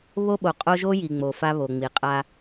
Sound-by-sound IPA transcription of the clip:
β o˦ ɓ o˨ qʼ o˦ ʒ o˦ j i˨ ŋ͡m o˨ f a˦ β o˨ ŋ͡m i˨ qʼ a˦

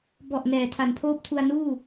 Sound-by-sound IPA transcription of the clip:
b ɔ˨˩ ʔ n ɛː˨˩ tʰ a˨˩ n pʰ oː˥˩ p̚ tʰ u˧ a̯ n uː˥˩

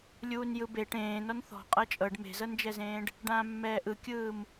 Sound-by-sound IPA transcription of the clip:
lʲ uː n j ɯ b e ʈ ẽː n ɔ n θ ɔ̤ qʼ ɤ t͡ʃʼ ɤ ɖ m e̤ z ɤ n d͡ʒ ɛ z ẽː ɖ | ɖ ãː mː ɛː ʔ ɯ kʲ ɯː m

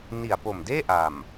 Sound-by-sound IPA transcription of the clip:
n i˨˩ a̯ p o˨˩ m d eː˥˩ ʔ a˨˩ m

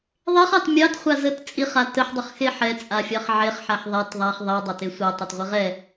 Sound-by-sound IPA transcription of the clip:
ðˤ e χ ɑ t mʲ ɑ t χʷ a z ə t t͡sʼ i χ a t ə ħ dˤ ə χ x e ħ ɛ t͡sʼ a fʲ ɑ χ ʕ e χ ħ a ħ ðˤ ɛ t ðˤ a χ ðˤ i dˤ ɛ t e sʷ ɛ tˤ ɛ t ʁʷ e ʁ ɛ

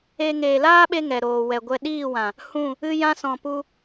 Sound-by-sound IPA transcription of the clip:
e˧ ŋ eː˨ l aː˦ ɓ e˧ ŋ ɛ˨ ɾ oː˨ w ɛ˨ ɡʷ ɛ˧ ɗ iː˦˨ w ã˨ | h ũ˦˨ | ɨ˧ j ã˧ s ɔ̃˨ p u˧

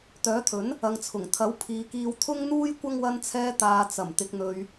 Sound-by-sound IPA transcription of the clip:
t̪ œː˨˥ t̪ʰ ɵ˨˥ n | ɐ˨ ŋ t͡sʰ ʊ˨˩ ŋ t̪ʰ ɐ˨˥ w pʰ iː˨ k iː˧ w t̪ʰ ʊ˥ ŋ n̪ uː˥ j kʷ ɐ˧ ŋ w ɐ˨ n t͡sʰ ɛː˨ t̪ aː˨ t͡s ɐ˨˩ m t̪ ɪ˨ k̚ n̪ ɵ˨ ɥ

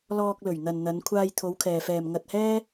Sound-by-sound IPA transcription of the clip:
l ɔː˧ k̚ l ɵ˨˩ ɥ n̪ ɐ˨ n n̪ ɐ˨˧ n kʷʰ aː˧ j t̪ʰ o˨˧ w kʰ ɛː˨ f ɛː˨ m ŋ ɐ˧ t̚ h ɛː˥

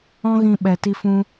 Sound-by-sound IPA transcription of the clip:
ɔ̃˦ ɣ ĩ˧ ɓ ɛ˨ t i˧ f ũ˧

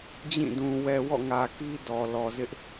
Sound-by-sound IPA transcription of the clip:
d͡ʑ ĩ˦˨ d ũ˨ w ɛ˨ w ɔ̰˦˨ ŋ ä˨ k i˦ d ɔ˨ l ɔ˨ z ɪ˦ ʔ

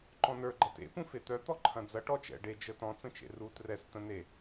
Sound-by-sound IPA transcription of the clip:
ǃ ɔ̃ n ə˞ ɡ͡ǃ ɐ t ḛ p ũ f e t̪ œ t̪ ɔ ǃʰ ɐ̃ d͡z ɐ ʈ ɔ t͡ʃ ɛ̰ ɖ e d͡ʒ ə t ɔ̃ t͡s ə̃ t͡ʃ ḛ r u t r ɛ s t̪ ə̃ n e

